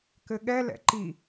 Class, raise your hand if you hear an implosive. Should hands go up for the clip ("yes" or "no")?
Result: yes